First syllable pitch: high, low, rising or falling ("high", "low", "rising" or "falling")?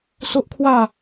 high